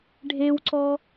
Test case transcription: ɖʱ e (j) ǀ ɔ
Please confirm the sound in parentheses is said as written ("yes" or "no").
no